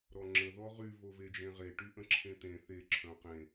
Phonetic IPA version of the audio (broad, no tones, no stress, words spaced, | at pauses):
ɾɔŋ͡ǁə ðɔʁy voved͡ʒẽʁe ʈyʔə̃ǁʰẽt̪ẽ θe ǁʰœ̃qẽ